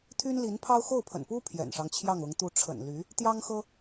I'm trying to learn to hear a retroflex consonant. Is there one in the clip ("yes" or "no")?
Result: yes